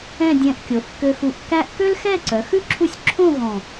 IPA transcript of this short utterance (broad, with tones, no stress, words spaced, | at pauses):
ɛ̃˥˧ dʲɛ̃˧ʔkʲo˩˧θ kø˧xu˧˩ʔ kæ˥ʔ kø˥lxɛ˥˧ǀœ˩˧xʉ˥˧ ǁʰu˥sʲ ǁʰõ˥˧ ɣɔ̃˧˩